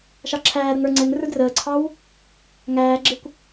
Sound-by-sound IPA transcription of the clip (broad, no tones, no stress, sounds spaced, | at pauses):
ʃ ɑ ǁʰ æː ɾ ə ŋ ə˞ ŋ͡ǀ ɛ ŋ r ə˞ d r əː ǀʰ ɑ w | ŋ æː ɡ͡ǁ ɪ kʷ